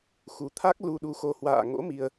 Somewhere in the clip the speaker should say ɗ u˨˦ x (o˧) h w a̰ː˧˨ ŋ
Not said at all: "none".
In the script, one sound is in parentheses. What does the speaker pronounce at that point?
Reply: o˧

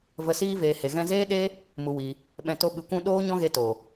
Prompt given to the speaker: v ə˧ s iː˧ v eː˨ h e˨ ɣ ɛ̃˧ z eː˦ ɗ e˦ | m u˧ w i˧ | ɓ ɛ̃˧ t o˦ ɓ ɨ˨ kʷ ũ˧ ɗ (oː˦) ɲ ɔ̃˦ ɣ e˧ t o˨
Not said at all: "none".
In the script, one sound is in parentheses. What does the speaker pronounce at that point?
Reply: oː˦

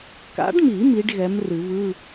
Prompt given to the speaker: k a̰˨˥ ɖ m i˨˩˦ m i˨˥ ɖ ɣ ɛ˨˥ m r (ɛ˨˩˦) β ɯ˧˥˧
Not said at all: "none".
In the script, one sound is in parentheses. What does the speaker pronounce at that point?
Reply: ɨ˨˩˦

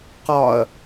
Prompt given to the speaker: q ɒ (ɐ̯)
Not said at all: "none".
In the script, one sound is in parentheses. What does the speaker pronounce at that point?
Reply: ɐ̯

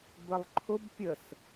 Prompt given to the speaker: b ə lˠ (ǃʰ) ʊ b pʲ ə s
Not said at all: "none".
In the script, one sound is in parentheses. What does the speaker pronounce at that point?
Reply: ǃʰ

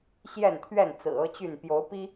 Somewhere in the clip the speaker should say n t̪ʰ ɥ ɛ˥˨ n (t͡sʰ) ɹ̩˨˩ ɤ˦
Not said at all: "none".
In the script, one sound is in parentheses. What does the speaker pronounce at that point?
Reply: t͡s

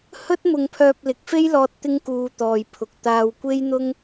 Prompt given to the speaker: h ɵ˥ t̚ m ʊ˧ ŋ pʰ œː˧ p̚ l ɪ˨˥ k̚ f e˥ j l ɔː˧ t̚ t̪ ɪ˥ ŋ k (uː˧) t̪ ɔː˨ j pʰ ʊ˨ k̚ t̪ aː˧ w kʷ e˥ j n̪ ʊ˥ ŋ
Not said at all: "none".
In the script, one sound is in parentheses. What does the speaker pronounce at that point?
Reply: uː˧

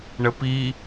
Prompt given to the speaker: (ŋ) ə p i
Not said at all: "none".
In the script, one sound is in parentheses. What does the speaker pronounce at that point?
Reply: ɳ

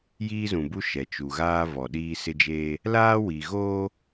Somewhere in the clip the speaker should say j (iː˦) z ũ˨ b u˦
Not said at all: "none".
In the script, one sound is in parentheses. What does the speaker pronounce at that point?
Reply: iː˦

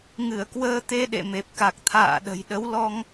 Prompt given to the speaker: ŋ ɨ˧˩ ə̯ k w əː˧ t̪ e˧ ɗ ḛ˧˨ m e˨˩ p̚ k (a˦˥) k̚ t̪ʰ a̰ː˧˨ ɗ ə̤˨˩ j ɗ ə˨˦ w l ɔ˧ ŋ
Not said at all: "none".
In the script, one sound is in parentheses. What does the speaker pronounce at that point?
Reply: a˨˩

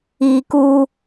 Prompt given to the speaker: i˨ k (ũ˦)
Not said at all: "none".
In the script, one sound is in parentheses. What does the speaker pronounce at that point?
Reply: u˦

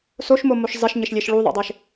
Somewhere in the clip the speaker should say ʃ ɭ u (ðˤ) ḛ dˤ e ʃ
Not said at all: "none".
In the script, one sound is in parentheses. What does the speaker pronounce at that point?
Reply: ðˤ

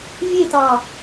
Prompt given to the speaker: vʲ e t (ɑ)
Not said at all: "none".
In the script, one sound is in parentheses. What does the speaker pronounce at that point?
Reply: ɑ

